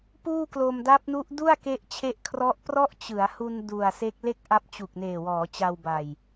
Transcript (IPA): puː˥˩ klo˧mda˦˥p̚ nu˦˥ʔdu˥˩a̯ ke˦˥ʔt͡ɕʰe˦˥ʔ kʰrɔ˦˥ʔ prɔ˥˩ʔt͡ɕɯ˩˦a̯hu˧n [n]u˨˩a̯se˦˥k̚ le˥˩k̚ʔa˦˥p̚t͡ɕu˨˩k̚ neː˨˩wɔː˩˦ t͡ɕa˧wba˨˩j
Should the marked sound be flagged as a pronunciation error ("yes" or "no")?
yes